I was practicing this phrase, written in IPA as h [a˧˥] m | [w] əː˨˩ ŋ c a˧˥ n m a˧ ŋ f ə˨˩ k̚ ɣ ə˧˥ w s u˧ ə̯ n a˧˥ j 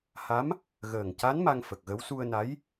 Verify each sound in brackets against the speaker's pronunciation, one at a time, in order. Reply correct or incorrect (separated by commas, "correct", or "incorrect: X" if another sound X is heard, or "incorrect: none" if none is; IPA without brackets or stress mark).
correct, incorrect: ɣ